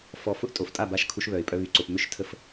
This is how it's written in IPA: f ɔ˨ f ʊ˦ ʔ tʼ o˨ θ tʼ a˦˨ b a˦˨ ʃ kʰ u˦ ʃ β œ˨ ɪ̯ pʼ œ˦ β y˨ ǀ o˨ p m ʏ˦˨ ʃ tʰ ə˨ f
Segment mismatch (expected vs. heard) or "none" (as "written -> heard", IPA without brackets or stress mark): θ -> f